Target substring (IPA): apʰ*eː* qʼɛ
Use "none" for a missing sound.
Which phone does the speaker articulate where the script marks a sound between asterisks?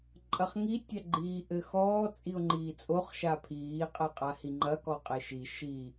iː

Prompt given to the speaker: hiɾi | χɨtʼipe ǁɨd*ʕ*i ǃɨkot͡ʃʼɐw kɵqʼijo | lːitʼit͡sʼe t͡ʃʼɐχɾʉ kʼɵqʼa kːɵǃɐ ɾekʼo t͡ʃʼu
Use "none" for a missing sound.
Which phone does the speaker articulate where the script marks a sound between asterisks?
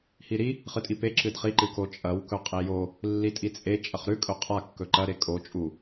χ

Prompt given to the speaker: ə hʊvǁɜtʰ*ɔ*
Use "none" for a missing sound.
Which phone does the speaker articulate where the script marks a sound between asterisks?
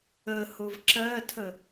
ə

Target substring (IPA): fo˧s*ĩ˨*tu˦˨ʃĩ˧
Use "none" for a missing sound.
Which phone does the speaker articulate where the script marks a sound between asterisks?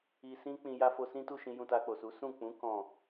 ĩ˦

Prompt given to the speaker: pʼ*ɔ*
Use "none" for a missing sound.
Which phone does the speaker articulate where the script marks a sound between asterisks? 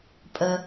ə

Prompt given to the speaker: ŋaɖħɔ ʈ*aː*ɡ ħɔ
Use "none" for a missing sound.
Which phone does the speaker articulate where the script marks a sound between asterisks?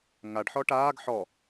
aː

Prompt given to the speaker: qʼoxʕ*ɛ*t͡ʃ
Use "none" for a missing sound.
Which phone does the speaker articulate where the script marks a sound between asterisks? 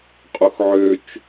ø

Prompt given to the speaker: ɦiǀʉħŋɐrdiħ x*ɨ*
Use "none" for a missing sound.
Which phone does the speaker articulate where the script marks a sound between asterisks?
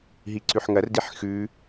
ʉ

